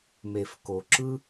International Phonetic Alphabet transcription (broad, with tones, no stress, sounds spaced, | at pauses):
m e˨ f k o˨ ǁ ɯ˥